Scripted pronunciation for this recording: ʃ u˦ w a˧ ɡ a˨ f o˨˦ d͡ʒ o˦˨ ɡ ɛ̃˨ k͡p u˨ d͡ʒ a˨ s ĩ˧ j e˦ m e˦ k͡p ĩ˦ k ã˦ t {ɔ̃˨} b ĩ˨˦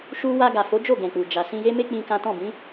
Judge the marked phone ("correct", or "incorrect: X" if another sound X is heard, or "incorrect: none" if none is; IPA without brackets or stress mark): incorrect: ɔ̃˦˨